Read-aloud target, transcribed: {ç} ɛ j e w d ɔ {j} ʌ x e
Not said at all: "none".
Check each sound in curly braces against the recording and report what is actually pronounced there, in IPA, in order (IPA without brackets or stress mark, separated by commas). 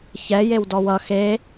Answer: ç, w